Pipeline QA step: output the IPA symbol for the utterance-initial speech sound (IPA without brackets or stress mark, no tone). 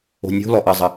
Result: o̤